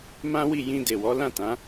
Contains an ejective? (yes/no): no